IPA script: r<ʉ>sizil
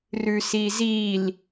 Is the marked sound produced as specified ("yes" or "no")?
yes